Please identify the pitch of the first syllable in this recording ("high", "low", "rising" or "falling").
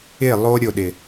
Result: falling